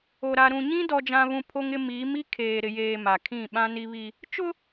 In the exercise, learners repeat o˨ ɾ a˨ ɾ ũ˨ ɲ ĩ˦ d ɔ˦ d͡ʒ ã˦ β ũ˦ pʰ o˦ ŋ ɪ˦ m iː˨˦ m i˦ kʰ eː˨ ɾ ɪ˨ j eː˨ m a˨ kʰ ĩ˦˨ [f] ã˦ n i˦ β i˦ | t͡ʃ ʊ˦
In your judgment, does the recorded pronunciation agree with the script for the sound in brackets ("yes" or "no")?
no